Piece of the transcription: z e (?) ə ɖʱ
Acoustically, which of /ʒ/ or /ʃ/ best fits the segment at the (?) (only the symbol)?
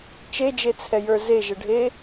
ʒ